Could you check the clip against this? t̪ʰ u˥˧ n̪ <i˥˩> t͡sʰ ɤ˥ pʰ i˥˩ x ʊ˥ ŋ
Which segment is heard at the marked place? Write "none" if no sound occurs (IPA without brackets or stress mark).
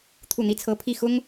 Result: i˥˩